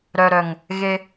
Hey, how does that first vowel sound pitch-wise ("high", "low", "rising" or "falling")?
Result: low